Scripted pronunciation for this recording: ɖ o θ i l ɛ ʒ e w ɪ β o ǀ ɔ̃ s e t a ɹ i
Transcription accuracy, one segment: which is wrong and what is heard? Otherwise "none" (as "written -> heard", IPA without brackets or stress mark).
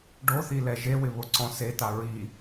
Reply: none